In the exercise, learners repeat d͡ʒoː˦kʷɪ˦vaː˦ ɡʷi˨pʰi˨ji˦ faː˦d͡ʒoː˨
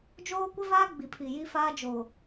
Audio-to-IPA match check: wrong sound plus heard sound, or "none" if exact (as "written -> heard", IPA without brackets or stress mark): ɡʷ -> ɡ͡b